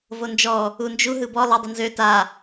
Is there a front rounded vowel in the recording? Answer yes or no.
yes